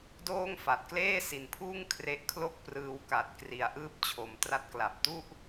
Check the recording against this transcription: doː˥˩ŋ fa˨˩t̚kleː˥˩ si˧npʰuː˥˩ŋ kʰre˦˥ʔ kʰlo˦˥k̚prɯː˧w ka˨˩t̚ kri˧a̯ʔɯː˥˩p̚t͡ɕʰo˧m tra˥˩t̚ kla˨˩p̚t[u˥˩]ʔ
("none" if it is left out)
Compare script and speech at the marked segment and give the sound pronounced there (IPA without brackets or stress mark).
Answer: u˥˩